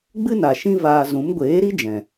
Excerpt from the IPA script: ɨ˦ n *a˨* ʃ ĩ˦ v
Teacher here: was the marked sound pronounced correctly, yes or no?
yes